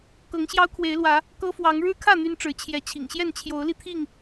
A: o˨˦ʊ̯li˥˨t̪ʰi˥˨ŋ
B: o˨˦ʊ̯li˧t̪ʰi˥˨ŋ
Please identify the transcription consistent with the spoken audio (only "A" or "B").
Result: B